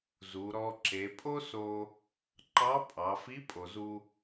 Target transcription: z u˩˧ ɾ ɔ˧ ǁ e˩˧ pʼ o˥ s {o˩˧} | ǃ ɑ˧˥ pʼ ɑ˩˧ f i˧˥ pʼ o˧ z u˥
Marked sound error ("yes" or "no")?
yes